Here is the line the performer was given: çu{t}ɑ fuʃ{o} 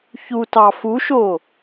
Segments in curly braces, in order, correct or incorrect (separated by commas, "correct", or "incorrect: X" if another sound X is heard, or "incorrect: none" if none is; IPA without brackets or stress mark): correct, correct